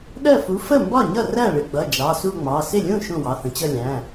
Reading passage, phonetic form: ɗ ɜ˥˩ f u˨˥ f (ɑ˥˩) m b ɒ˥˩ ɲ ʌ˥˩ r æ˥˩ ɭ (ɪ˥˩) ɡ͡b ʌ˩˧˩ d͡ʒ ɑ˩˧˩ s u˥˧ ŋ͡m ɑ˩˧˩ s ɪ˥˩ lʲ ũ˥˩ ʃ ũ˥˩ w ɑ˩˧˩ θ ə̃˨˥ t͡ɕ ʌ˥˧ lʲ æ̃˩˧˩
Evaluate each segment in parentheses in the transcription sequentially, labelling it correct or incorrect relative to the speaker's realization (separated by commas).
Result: incorrect, incorrect